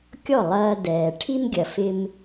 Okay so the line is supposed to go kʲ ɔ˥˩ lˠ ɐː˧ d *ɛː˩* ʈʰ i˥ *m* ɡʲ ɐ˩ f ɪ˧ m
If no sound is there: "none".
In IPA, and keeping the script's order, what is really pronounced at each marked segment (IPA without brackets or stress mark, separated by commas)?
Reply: ɛː˩, m